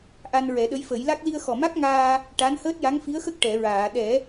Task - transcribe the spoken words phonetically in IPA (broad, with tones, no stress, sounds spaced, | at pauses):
ʔ a˧ n ɹ ɛ˨˩˦ ɗ ə˧˥ j f ə˨˩˦ j l a˦˥ k̚ l i˧ ə̯ x ɔ˨˩ m a˦˥ k̚ ŋ aː˧ | ʈ a˧˥ n h əː˦˥ t̚ j a˧˥ ŋ f i˧˥ ə̯ x ə˦˥ k̚ ʈ ɛ˨˩˨ ɹ aː˨˩˨ ɗ ɛ˨˩˦